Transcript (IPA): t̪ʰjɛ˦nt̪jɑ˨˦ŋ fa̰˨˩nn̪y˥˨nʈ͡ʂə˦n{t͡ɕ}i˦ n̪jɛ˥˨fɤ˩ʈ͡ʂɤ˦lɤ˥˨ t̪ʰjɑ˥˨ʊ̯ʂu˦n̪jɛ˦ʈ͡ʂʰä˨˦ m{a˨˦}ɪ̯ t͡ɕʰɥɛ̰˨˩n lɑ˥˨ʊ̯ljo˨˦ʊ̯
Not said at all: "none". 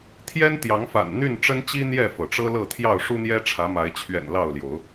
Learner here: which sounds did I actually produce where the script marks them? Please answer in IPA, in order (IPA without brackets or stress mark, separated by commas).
t͡ɕ, a˨˦